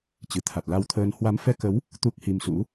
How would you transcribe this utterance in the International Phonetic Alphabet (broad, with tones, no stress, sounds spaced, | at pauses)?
t͡ɕ ɨ˨˩ t̪ʰ a˨˩ t̚ l a˧ w t̪ʰ əː˧ n h w a˨˦ m f ɛ˧ k ə˨˦ w | t̪ u˦˥ k̚ h i˧ m s ṵ˧˥